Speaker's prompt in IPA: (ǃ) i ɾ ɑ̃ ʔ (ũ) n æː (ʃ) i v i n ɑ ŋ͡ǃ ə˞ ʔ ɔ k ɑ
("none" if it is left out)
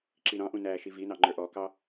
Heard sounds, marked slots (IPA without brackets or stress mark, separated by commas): ǁ, ũ, ʃ